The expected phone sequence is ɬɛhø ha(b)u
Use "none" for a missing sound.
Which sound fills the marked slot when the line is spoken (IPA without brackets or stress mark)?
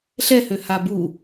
b